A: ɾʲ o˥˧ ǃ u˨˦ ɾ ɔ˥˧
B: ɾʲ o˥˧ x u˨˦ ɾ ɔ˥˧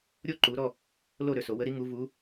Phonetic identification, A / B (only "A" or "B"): A